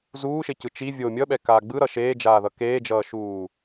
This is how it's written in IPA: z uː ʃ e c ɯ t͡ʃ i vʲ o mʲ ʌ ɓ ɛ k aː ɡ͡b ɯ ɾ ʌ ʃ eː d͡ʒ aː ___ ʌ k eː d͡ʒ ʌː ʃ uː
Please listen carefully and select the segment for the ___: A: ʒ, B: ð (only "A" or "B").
B